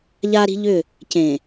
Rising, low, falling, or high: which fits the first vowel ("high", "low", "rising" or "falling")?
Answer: high